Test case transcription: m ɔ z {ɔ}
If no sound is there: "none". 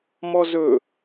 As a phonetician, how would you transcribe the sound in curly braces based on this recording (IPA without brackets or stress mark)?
ɵ